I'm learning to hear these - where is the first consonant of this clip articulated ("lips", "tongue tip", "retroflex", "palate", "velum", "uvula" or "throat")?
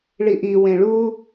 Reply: retroflex